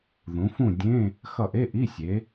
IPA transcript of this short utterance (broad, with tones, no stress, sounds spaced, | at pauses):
ð ũ˩˧ f ũ˦˨ dʲ ẽ˧˥˧ | x ʌ˦˨ ʔ e˧˥˧ ʔ i˧˥˧ sʲ e˩˧